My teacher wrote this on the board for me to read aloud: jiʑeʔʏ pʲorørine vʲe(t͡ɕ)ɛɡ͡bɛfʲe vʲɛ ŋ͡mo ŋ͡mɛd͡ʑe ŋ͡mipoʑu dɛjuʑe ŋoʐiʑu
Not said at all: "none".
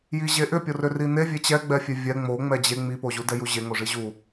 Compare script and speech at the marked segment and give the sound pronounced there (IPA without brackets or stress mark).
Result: t͡ɕ